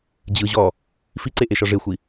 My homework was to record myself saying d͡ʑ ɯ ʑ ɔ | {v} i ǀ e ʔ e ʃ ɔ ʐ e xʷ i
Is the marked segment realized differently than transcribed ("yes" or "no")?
yes